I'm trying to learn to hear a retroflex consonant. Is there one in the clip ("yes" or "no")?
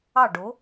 yes